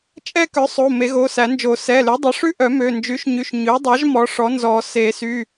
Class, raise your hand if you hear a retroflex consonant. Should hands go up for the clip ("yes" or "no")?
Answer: yes